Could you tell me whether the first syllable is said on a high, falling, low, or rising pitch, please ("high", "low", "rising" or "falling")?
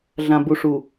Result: low